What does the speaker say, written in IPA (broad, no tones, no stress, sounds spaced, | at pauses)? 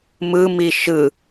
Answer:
m ɯ m i ʃ ɯ